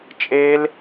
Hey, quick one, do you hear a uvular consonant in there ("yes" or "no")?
no